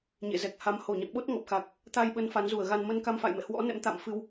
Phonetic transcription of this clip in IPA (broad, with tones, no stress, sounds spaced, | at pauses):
ɲ ḛ˧˨ z ɛ˨˩ k̚ h a˨˦ m h o˧˩ ɲ ɔ̰˧˨ n ɓ o˦˥ t̚ ŋ ɔ˨˩ p̚ x a˨˩ k̚ | t̪ a˧ j ɓ ə˨˦ n f a˨˦ n z u˧˩ ə̯ ɣ a˧ n m ə˧ n k a˧ m f a̰˧˨ j m ɛ̰˧˨ h w ɔ̰˧˥ n ɛ̰˧˥ m t̪ a̰˧˨ m f ɨ˧ w